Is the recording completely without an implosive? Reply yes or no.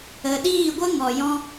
no